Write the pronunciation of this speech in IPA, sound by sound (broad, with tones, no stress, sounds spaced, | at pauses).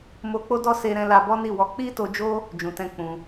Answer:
m o˧ k͡p o˦ d ɔ˦ s e˦ ɾ ɛ̃˦ l a˦ b ɔ˦ n i˦˨ w ɔ˧ k͡p i˦ t o˧ d͡ʒ o˦ | d͡ʒ ũ˨ t ɛ̃˧ k͡p ũ˧